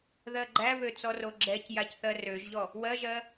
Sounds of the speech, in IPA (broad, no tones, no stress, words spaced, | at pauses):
ðɜɡ͡ǃæβø t͡sɔroɡ͡ǁɛcjac θɜrøʒʎɔ | wɜʒɜ